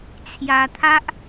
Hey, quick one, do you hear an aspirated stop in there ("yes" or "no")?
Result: yes